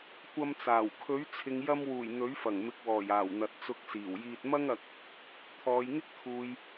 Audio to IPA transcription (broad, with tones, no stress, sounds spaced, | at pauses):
kʷ ɐ˧ m t͡s aː˨˩ w kʰ ɵ˨˥ ɥ t͡sʰ ɪ˨˧ ŋ j ɐ˧ m w uː˨˩ j n̪ ɵ˨˥ ɥ f ɐ˨˩ ŋ m ɪ˨ k̚ w ɔː˨˩ j aː˨˩ w n̪ ɐ˨ t̚ t͡s ʊ˧ k̚ s iː˨˩ w j iː˧ t̚ m ɐ˥ ŋ ɐ˧ k̚ | t̪ʰ ɔː˨˧ j ŋ ɪ˥ k̚ t̪ʰ uː˨ j